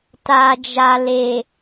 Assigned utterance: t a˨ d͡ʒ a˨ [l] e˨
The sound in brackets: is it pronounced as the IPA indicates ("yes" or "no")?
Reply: yes